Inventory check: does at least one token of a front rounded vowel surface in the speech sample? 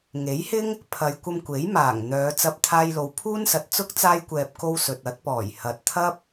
yes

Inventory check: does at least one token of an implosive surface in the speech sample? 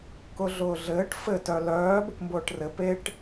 no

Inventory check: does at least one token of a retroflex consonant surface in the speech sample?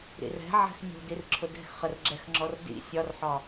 no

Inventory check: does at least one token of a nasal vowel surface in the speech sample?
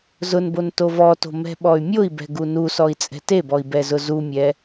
no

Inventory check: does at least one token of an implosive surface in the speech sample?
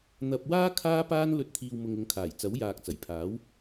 no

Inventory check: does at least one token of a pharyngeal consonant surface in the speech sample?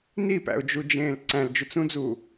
no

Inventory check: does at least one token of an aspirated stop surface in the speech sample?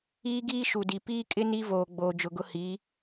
no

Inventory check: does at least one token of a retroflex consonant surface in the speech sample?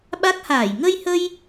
no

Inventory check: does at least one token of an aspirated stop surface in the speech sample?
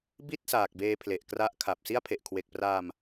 yes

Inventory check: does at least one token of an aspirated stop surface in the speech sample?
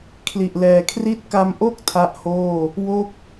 yes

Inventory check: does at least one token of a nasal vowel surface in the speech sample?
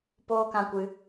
yes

